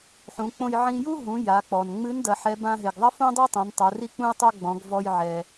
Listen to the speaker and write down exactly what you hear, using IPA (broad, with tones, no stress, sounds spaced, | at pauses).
ħ ũ˩˧ k͡p õ˧ j ʕ ĩ˧ j u˥ ɦ ũ˩˧ j a˩˧ k͡p ɔ˩ n ŋ͡m ɨ˧˥ n d ɐ˩˧ ħ ɛ˧˥ b ã˥ ɦ e˩ ɡ ðˤ ɐ˥ f õ˥ dˤ e˥ tˤ ẽ˩˧ n tˤ o˩˧ r i˥ k͡p ũ˥ j tˤ o˥ ɡ͡b ɔ̃˩˧ ɡ v ɔ˧ j ʕ ɛ˩